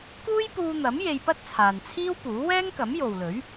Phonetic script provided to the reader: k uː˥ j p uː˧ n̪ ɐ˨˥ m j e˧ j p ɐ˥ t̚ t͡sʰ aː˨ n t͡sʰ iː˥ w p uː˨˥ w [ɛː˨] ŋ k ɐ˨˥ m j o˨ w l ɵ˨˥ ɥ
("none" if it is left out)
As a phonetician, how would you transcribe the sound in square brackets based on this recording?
ɛː˥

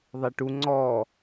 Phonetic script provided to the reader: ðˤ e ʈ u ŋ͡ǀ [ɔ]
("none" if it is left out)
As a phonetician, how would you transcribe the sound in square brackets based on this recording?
ɔ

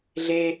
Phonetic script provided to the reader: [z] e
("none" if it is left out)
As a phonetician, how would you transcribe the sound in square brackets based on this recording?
ɮ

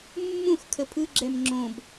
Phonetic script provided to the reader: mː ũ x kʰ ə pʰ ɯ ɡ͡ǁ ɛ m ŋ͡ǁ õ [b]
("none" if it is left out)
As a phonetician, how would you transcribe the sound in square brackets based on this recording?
b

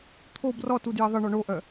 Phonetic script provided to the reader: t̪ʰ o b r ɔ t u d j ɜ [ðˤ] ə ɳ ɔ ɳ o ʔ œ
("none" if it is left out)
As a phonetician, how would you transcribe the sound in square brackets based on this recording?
ðˤ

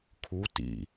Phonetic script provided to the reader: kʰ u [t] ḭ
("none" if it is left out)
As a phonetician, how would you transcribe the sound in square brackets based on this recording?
t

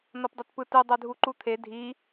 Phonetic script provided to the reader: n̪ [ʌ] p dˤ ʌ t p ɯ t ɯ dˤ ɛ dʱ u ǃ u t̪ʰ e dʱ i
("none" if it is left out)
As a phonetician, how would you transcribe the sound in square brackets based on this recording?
ʌ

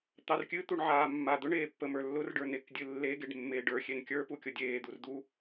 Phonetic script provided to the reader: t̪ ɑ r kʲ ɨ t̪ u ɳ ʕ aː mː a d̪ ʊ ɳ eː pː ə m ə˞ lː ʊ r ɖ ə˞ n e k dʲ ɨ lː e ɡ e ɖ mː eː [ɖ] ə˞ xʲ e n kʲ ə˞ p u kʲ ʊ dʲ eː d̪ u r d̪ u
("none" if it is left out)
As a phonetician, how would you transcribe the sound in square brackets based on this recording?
ɖ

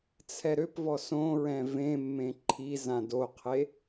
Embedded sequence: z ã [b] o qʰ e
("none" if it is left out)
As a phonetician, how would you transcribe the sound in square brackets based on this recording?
d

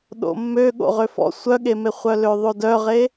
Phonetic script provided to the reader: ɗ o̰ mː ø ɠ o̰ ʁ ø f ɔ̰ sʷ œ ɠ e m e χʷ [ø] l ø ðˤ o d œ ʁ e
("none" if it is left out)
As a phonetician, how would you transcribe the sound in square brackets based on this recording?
œ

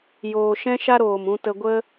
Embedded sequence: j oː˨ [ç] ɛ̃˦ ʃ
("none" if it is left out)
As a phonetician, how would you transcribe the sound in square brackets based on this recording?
ʃ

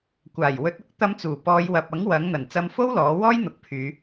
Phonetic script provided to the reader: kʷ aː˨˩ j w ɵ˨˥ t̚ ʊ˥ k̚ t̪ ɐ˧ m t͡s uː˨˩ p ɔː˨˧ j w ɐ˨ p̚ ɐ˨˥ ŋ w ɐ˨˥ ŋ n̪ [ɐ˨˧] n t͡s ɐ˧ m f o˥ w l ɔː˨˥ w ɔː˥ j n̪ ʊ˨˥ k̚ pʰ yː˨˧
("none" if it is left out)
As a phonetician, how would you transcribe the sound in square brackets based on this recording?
ɐ˨˩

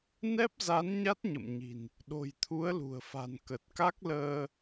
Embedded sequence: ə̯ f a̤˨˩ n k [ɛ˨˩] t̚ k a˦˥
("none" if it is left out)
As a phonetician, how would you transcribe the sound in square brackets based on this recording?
ə˨˩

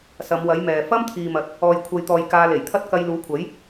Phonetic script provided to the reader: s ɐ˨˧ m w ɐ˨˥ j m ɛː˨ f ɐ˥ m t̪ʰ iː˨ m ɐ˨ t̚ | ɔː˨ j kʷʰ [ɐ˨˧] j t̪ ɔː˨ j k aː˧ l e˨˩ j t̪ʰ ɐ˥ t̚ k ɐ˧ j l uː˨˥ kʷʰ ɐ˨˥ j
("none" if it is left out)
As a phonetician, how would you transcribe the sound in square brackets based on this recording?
ɐ˨˧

